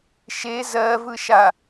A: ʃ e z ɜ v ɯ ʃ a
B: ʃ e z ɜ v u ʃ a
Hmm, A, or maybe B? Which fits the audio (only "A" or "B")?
A